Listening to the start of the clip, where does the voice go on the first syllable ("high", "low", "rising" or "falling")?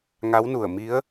rising